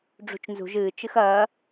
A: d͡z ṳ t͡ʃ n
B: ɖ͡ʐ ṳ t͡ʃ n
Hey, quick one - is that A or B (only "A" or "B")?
B